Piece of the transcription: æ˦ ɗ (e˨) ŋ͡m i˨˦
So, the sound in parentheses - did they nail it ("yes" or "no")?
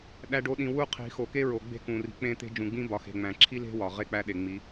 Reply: yes